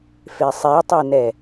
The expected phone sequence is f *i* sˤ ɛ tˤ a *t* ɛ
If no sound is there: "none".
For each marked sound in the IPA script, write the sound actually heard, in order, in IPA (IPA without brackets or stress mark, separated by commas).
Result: e, n